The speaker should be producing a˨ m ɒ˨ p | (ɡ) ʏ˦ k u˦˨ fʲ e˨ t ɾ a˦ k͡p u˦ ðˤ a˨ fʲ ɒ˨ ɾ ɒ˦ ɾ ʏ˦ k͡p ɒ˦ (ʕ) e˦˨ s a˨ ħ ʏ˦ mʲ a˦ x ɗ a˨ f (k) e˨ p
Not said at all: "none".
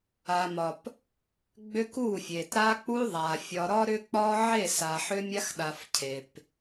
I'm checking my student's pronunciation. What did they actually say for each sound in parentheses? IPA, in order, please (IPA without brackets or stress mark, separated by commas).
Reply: ɡ͡b, ʕ, cʰ